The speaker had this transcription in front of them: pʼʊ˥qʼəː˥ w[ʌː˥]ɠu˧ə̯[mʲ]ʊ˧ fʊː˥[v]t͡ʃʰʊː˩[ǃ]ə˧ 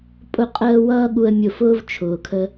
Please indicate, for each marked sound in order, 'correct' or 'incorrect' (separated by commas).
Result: correct, correct, correct, incorrect